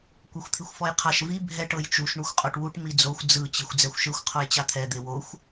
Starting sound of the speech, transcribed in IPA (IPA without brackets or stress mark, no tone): kʷ